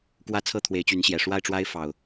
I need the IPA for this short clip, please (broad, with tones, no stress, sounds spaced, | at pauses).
k w ä˦ t͡sʰ ɤ˥˨ t̪ʰ w e˨˦ ɪ̯ t͡ɕ y˨˦ n ɕ j ɛ˨˩ ʂ w a˥˨ ɪ̯ ʈ͡ʂ w a˦ ɪ̯ f ɑ˨˩ ʊ̯